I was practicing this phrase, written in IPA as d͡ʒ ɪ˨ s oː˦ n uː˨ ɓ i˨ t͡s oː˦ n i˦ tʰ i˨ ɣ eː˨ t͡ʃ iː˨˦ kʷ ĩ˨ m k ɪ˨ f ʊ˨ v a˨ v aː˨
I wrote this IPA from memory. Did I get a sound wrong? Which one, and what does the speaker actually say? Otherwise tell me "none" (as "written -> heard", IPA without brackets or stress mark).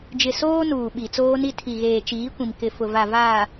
none